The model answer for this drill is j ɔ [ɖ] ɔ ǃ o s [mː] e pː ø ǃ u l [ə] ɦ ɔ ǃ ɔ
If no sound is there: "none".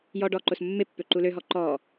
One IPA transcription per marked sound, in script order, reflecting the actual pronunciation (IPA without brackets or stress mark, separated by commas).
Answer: ɖ, mː, ø